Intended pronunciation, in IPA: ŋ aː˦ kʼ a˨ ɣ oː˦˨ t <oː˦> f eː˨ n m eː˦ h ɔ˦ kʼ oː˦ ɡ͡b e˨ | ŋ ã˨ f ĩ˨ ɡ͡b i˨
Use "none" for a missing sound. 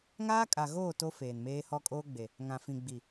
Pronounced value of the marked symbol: o˦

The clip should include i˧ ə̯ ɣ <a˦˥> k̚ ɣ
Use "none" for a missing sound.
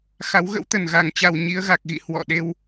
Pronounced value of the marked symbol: a˨˩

